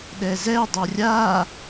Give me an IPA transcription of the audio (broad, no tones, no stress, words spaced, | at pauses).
ɗɛzɛ dˤorʲa